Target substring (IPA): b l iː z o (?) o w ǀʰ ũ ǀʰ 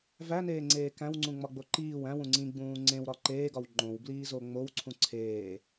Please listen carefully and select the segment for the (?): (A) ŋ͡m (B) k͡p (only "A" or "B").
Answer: A